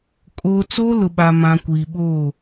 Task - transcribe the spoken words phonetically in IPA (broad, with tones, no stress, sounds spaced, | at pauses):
kʼ o˨ t͡s o˦ l ʊ˨ ɓ a˨ m ã˨ kʷ iː˨ ɓ oː˦˨